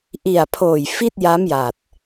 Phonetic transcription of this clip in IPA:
ʔ i˨˩ a̯ pʰ oː˨˩ j f i˥˩ t̚ j a˦˥ m j a˨˩ t̚

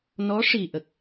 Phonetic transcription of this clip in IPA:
n ɔ˧˥ ʂ i˨˩ ʔ ə˦˥ k̚

